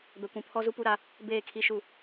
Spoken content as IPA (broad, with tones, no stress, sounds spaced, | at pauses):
b ɛ˨ kʷ ũ˨ pʰ ɔ˦ z u˦ p u˦ ɾ a˦ | b eː˦˨ kʰ i˦ ʃ u˦˨